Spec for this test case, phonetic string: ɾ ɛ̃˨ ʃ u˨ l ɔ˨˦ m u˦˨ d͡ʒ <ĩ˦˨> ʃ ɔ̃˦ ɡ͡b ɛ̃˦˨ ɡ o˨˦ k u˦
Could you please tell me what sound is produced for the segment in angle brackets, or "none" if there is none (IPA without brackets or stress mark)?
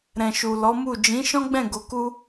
ĩ˨˦